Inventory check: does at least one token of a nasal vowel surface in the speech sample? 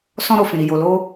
yes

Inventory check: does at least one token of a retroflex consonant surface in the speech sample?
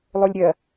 no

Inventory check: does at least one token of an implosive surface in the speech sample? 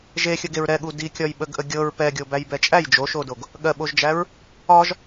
yes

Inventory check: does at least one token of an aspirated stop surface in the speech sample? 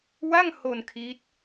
yes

